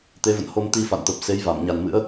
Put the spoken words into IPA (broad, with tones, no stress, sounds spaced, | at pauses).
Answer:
t̪ e˨˦ v ə̰˧˨ n h o˧ m t̪ i˧ f a̰˧˨ n t̪ ə˨˩ p̚ s e˨˦ j v a˧˩ m ɲ a˨˩ n m ɨ̰˧˥ ə̯